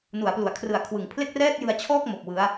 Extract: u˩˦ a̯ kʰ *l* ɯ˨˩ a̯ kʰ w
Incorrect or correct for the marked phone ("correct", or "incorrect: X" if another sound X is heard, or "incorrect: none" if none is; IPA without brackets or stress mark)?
incorrect: r